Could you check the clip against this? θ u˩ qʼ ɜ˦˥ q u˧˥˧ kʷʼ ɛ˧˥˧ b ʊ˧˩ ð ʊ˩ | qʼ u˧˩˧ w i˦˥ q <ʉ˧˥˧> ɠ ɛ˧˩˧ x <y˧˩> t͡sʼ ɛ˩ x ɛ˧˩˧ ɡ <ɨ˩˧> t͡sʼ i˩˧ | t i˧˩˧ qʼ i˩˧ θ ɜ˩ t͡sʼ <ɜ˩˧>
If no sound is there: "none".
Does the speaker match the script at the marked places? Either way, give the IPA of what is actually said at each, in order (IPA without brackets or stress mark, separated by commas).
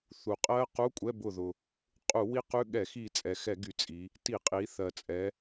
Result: ʉ˧˥˧, i˧˩, y˩˧, ɛ˩˧